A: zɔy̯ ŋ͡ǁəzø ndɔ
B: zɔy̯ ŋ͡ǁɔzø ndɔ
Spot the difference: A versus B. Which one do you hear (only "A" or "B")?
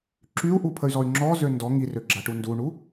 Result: B